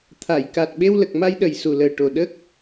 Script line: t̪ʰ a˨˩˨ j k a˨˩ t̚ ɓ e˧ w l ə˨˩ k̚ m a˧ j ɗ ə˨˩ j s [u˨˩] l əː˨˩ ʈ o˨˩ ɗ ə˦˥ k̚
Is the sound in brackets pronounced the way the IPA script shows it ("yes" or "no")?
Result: yes